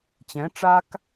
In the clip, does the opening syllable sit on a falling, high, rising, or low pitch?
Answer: rising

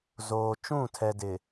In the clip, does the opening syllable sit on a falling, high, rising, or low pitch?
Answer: low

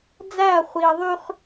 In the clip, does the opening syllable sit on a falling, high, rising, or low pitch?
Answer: falling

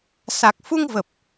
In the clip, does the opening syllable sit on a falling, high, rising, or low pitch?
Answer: low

